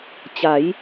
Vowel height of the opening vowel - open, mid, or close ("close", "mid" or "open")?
open